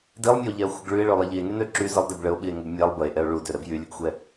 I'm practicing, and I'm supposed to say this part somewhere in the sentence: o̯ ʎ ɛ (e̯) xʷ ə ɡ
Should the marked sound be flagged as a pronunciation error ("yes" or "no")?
yes